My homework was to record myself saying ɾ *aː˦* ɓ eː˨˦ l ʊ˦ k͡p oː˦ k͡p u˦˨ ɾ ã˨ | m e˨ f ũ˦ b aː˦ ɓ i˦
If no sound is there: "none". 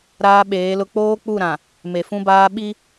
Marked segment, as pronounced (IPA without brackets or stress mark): aː˦